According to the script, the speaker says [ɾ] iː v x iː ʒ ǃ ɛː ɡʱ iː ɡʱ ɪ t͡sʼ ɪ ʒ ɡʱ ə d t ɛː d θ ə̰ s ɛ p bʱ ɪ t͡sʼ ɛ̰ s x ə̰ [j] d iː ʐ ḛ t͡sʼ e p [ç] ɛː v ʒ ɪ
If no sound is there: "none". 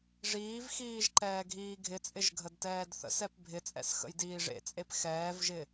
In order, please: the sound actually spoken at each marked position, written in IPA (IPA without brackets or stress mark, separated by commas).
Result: ʐ, j, x